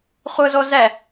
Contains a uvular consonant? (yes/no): yes